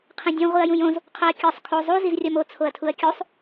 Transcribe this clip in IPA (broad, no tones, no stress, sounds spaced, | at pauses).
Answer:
qʰ ẽ dʲ ũ ʁʷ i ɐ̯ j ũ j õ z | qʰ o ɐ̯ kʲ ɒ sˤ kʰ o zˤ u z i z rʲ ɒ m o t͡sʰ o ɐ̯ tʰ u ɐ̯ kʲ u sˤ